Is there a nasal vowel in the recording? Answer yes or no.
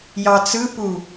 no